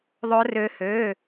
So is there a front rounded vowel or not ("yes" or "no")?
yes